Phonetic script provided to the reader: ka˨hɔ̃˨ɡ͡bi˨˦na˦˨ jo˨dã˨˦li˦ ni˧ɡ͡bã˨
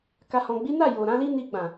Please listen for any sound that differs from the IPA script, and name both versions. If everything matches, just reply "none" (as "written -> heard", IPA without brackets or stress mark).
d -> ɾ